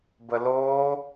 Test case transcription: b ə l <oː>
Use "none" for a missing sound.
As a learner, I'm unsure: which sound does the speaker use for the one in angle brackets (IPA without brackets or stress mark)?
oː